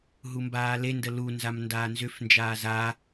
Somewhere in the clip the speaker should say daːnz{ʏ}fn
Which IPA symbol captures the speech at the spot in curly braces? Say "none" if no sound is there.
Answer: ʏ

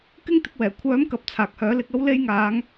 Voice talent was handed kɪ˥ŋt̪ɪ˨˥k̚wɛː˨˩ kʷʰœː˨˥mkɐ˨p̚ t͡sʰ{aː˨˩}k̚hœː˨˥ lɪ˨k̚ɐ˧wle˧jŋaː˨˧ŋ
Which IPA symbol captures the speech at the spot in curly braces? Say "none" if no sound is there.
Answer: aː˨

